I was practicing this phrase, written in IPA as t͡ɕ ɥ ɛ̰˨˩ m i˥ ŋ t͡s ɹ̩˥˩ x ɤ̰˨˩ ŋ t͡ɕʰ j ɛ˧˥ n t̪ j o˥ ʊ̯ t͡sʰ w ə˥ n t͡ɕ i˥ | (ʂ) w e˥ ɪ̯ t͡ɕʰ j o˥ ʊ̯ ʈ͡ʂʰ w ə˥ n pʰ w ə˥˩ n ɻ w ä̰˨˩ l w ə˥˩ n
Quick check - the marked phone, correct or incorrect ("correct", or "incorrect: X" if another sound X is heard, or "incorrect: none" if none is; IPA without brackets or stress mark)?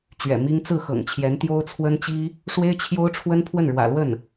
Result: correct